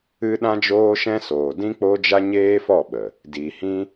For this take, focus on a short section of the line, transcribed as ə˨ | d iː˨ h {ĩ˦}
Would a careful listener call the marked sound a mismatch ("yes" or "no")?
no